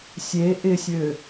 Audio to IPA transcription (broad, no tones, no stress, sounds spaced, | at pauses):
sʲ e ʔ ɪ sʲ ø